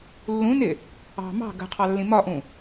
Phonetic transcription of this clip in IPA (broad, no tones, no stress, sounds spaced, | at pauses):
lː ũ n ɪ | ɑ̤ m ɑ̤ ɡ ə̤ qʰ ɑ lː ĩ m ɒ ʔ ũ